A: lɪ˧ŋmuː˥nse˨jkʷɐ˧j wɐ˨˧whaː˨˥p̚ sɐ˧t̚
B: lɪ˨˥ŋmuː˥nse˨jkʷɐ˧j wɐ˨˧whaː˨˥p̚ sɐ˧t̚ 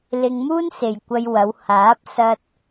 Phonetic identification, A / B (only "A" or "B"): A